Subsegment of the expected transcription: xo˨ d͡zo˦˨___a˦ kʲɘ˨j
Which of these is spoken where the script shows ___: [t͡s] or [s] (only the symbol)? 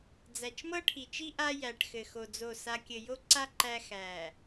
s